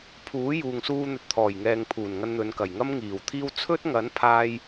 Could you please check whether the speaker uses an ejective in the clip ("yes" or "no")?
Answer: no